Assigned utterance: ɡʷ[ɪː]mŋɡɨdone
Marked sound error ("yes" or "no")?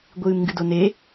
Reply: yes